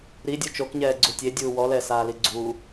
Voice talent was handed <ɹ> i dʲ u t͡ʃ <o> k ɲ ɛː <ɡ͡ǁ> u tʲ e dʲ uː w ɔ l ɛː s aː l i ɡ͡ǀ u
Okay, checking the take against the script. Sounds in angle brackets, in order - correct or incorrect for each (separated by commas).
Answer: incorrect, correct, incorrect